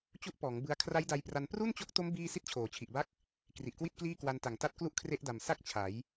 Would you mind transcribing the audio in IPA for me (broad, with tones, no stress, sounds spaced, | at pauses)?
t͡ɕ u˦˥ ʔ p ɔː˩˦ ŋ b ɯ˧ a̯ kʰ r a˦˥ j d a˧ j p r a˧ n p r u˥˩ n t͡ɕ o˦˥ k̚ t o˦˥ m b iː˥˩ s i˥˩ t̚ t͡ɕʰ oː˩˦ t͡ɕʰ i˨˩ ʔ b a˥˩ k̚ | k r i˨˩ ʔ k w i˥˩ t̚ k l iː˥˩ k w a˧ n t a˨˩ ŋ t a˦˥ t̚ k l u˥˩ ʔ kʰ r e˦˥ ʔ d a˨˩ m s a˥˩ k̚ t͡ɕʰ a˩˦ j